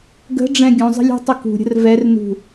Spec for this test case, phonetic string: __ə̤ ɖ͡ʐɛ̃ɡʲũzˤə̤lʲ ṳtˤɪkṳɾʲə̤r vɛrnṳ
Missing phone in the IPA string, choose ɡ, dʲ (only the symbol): ɡ